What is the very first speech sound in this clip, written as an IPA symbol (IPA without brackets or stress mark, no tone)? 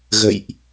ɣ